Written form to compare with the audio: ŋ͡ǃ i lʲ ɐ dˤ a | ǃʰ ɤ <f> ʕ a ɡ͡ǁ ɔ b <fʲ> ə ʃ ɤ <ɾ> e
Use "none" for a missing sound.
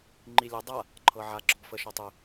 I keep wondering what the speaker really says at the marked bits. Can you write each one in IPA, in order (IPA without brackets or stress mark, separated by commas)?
none, f, tˤ